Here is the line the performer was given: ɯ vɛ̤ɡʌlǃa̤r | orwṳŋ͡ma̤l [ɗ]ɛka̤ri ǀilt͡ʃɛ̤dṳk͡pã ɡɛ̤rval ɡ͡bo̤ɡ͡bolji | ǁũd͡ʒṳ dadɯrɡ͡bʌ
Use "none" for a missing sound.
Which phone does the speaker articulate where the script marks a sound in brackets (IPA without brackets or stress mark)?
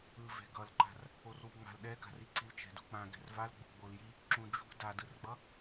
ɗ